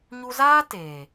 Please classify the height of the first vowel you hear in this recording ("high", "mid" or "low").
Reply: high